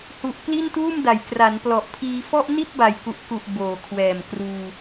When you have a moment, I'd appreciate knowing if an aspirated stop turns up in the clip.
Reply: yes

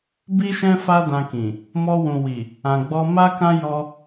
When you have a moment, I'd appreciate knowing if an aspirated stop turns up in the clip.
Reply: no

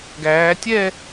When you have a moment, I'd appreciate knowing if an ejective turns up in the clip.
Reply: no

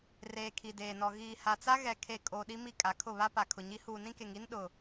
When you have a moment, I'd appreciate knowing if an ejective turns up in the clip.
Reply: yes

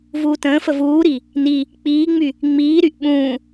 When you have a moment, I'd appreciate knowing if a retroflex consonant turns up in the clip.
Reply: no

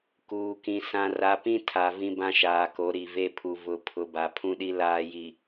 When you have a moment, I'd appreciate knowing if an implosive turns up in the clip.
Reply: yes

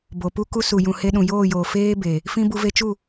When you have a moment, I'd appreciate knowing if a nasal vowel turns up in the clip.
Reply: yes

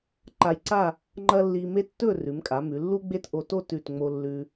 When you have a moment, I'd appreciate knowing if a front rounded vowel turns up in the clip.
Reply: no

